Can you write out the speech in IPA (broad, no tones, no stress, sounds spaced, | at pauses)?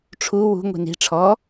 ʈ͡ʂʰ u w ṳ ŋʷ i̤ n i̤ ʈ͡ʂʰ ɔ